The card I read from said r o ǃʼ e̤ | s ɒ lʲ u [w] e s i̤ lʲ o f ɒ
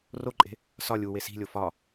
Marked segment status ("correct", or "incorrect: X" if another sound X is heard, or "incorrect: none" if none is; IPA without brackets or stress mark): correct